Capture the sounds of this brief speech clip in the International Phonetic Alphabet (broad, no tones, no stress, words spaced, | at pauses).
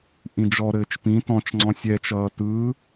ʔĩd͡ʒɔɾɘːt͡ʃ pĩ tɔ̃t͡ʃŋ͡ǀɔ̃ sʲɛt͡ʃʌː tɯ